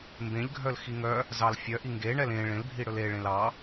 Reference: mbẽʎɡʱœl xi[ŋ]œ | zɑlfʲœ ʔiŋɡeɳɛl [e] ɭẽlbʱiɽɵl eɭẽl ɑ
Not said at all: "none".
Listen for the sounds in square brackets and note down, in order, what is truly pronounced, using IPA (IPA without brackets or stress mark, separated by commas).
ŋ, ẽ